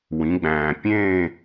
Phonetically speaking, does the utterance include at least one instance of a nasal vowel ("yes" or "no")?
yes